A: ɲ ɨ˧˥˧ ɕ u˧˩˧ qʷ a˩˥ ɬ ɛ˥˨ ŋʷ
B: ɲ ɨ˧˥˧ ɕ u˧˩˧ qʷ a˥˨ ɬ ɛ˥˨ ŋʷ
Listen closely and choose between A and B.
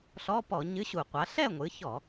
A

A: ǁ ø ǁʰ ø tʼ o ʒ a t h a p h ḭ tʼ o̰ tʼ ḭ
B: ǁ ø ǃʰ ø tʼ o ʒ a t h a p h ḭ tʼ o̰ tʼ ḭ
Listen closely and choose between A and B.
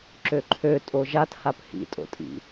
B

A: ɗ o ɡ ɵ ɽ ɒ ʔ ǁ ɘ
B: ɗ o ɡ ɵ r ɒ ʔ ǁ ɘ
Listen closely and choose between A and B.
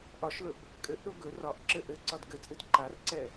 B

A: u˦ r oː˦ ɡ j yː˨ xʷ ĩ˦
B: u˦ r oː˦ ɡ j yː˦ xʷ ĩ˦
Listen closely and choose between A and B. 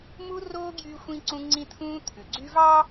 B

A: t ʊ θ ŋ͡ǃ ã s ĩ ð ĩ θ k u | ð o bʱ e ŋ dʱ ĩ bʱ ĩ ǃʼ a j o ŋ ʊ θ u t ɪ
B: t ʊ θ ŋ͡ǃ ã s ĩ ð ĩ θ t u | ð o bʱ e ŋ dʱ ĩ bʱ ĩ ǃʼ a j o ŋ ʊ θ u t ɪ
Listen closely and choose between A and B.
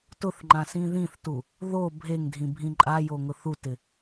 B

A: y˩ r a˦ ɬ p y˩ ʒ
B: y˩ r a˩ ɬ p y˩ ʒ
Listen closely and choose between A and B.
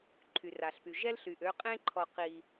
B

